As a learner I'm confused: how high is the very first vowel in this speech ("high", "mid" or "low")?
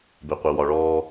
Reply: mid